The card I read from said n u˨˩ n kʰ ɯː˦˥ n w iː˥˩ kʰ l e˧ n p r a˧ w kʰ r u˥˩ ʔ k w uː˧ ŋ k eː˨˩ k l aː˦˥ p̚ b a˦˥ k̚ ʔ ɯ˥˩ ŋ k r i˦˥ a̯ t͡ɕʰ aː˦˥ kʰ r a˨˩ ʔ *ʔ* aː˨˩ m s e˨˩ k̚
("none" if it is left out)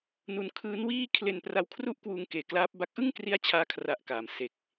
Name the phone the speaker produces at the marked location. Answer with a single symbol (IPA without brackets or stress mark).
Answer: k